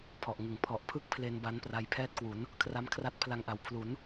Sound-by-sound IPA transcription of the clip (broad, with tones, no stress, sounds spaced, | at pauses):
pʰ ɔ˨˩ ʔ ŋ ɯ˨˩ ŋ pʰ ɔ˨˩ ʔ pʰ ɯ˥˩ k̚ pʰ l e˧ n b a˦˥ n p r a˧ j pʰ ɛː˥˩ t̚ k w u˩˦ n | kʰ r a˦˥ m kʰ r a˦˥ t̚ pʰ l a˧ ŋ ʔ a˩˦ w pʰ l u˩˦ n